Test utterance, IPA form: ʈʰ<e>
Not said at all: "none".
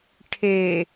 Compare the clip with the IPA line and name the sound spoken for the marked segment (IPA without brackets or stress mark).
e